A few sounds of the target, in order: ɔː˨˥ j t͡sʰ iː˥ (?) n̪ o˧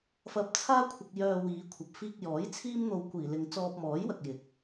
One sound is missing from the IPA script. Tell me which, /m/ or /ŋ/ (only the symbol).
m